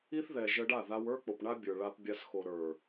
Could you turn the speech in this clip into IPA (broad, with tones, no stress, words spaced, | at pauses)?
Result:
i˦θ ðɛ˨ ʒə˧ɖa˦˨ða˧w ə˞˦k͡po˨p ɳa˧ bʲə˞˨ ɭa˧pbʲa˧sxo˨ ɾə˞˨